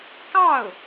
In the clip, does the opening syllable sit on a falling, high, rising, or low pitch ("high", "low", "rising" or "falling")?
falling